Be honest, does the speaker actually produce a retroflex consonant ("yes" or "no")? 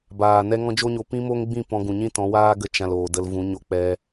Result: no